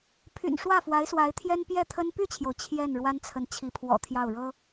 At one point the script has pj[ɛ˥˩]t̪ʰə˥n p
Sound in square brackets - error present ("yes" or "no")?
no